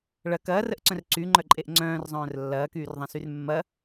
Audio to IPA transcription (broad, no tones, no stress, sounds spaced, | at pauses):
ɭ ɐ k ɐː r ə ʔ ǀ œ̃ r ǀ y ŋ͡ǃ œ ǃʼ e ʔ ŋ͡ǀ œ̃ː r zˤ œ̃ː r lː ɐː k yː r ðˤ ɐ̃ s y r mː ɐ